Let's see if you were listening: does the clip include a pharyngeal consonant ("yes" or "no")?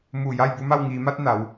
no